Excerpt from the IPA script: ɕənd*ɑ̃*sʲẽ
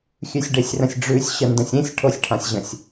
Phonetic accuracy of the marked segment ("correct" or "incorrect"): incorrect